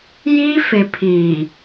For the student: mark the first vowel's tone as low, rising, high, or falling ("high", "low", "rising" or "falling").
high